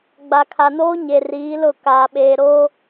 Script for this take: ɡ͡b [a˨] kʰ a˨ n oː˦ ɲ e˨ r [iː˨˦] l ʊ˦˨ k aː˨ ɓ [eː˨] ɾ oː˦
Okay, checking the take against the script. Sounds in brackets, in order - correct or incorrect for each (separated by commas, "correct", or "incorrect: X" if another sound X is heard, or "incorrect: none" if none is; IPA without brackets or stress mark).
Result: correct, correct, correct